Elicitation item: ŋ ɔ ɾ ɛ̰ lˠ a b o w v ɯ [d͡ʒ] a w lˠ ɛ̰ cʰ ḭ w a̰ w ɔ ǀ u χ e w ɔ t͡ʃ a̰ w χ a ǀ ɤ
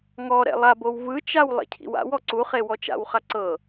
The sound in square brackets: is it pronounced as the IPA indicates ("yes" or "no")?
no